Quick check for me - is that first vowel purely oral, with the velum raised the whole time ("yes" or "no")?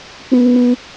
no